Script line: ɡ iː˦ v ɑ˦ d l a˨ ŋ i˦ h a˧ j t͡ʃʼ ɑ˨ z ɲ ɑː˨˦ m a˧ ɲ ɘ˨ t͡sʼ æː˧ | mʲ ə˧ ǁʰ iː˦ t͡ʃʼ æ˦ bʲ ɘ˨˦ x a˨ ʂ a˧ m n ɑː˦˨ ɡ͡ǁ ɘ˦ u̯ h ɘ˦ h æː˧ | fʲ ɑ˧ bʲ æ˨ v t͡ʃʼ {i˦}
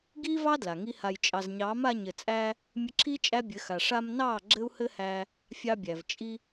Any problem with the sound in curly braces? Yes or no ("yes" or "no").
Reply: yes